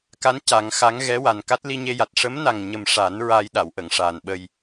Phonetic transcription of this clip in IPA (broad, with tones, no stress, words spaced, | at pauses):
ka˧˥n ca˨˩˦ŋxa˧˥ŋ ɣɛ˧˥ wa˨˩nka˦˥t̚ li˧ɲe˧ja˨˩t̚ ʂə˧˥mna˨˩ŋɲə˨˩m ʂa˨˩˦n ɹaː˧jɗa˨˩˨wʔə˨˩˨ŋ ʂaː˨˩nɓə˧j